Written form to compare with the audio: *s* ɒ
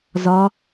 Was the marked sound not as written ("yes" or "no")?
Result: yes